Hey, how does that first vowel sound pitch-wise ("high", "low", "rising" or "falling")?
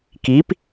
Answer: rising